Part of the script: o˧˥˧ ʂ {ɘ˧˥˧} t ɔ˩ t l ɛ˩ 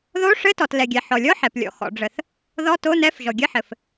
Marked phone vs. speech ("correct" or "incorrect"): correct